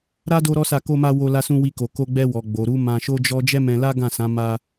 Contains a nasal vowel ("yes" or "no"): yes